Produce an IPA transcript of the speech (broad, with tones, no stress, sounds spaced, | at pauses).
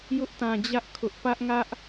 j ʊ˦ ʔ t ã˨ d͡ʑ ä˦ ʔ kʰ ʊ˦ ʔ p ä˦ ʔ ŋ ä˦ ʔ